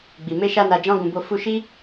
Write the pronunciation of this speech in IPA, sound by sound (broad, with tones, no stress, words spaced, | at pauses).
ɡ͡bi˨ me˧ʃa˧ na˨d͡ʒɔ̃˧ɡũ˨bo˧ fu˧ʃi˦